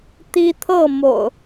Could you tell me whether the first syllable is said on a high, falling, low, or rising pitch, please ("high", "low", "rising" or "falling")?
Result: high